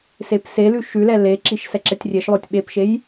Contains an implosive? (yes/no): yes